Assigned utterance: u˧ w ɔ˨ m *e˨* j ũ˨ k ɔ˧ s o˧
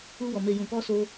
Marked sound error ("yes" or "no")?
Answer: no